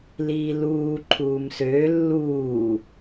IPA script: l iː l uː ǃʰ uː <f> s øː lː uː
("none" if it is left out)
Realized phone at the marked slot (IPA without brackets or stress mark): m